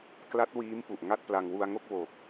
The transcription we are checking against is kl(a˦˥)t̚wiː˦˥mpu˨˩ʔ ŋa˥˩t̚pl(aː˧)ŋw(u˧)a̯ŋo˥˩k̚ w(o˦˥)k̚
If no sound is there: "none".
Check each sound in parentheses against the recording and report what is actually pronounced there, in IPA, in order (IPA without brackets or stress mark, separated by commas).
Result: a˦˥, a˧, u˧, o˨˩